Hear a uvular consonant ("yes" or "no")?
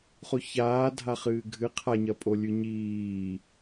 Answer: yes